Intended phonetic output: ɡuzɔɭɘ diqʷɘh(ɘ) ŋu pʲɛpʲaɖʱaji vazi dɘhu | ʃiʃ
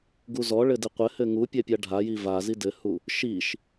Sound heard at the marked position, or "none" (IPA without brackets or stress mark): ɘ